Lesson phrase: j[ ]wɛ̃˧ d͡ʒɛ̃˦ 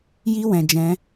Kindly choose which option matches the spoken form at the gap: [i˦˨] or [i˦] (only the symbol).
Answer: i˦